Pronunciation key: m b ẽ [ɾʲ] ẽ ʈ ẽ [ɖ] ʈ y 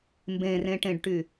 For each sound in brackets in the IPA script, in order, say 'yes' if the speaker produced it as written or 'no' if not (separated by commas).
no, yes